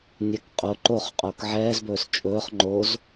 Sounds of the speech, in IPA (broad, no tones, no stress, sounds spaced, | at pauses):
nʲ ɛ k qʼ o ǃ o χ qʼ oː k ʕ ɛː z b ɵː s t͡ʃʼ ɵː χ ŋ͡ǃ o z